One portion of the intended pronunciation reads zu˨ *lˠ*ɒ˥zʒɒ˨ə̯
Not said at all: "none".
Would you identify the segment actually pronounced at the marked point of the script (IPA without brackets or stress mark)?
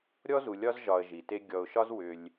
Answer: lʲ